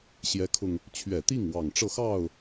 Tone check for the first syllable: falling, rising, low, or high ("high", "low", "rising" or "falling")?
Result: rising